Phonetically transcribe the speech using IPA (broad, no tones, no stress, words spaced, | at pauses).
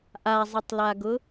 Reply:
ʔazˤɪtˤlaɡʊ